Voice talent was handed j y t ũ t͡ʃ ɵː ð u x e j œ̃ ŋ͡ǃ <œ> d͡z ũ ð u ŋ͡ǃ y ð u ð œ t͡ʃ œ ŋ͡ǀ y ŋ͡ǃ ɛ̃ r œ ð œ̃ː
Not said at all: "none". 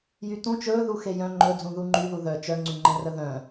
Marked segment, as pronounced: ɵ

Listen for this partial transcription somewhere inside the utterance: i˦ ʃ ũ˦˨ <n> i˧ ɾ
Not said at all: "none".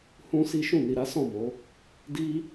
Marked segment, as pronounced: n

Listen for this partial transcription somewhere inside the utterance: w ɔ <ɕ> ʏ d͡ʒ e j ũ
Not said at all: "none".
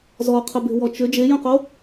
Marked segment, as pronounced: t͡ʃ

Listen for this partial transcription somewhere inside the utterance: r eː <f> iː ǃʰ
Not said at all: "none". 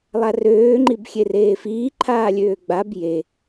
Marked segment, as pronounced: f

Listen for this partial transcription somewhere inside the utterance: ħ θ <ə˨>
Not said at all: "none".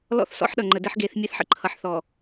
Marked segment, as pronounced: ɔ˨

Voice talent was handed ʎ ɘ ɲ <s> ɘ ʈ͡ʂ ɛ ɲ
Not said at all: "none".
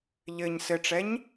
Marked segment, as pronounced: s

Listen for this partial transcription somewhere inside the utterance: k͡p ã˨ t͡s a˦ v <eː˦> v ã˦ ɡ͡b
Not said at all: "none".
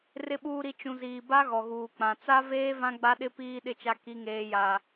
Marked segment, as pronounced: eː˦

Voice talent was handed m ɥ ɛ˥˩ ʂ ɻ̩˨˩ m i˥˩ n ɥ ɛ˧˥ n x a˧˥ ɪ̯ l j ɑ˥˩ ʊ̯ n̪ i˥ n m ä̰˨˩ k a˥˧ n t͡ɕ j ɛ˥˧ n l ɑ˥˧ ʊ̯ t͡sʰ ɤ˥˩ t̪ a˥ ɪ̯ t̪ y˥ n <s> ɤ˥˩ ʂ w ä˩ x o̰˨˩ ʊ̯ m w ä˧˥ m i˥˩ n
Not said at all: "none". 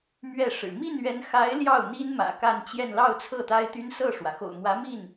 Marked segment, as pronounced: s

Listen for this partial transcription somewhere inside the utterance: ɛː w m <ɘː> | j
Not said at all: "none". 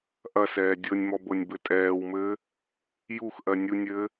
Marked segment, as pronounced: ɘː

